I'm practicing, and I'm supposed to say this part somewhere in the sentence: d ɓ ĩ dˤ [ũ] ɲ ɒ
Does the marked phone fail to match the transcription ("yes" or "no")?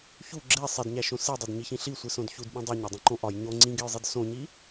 yes